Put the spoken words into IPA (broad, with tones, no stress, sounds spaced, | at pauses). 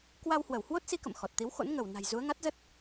k w a˧ w h w ə˧˩ w h w o˦˥ t̚ s i˨˦ k ə̰˧˨ m x ɔ˨˩ t̚ t̪ i˨˦ w x o̰˧˥ n ŋ ə˧˩ w n a̤˨˩ j z u˨˦ ə̯ ŋ a˦˥ t̚ z ə˦˥ t̚